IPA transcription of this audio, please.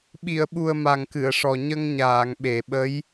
ɓ i˨˩˨ ə̯ ɓ u˨˩ ə̯ m a˨˩ ŋ k ɨ˨˩˨ ə̯ ʂ ɔ˨˩ ɲ ə˧ ŋ ɲ aː˨˩˨ ŋ ɓ e˨˩˨ ɓ ə˧˥ j

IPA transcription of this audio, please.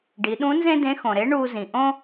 ɖ i˩˧ ɗ ũ˧˥ n z ẽ˥ d ẽ˧˥ x õ˩ ɾ e˧˥ ɳ uː˧ z ĩ˩ ʔ õ˥

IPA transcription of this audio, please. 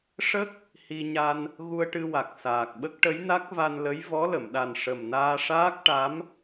ʂ ə˦˥ k̚ | h i˧ ɲ a˧ n | ɣ u˧ ə̯ ʈ ɨ˧ w a˨˩ k̚ s aː˨˩ k̚ ɓ ə˦˥ k̚ ʈ ə˧˥ j n a˦˥ k̚ v a˧ n l ə˧˥ j v ɔ˧˥ l ə˨˩˨ m ɗ a˨˩ n ʂ ə˨˩ m n aː˧ ʂ aː˦˥ k̚ ʈ a˧˥ m

